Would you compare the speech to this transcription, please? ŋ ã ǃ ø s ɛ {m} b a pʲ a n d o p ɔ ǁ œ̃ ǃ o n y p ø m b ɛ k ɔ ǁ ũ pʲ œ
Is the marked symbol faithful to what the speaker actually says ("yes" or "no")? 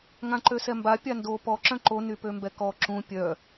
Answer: yes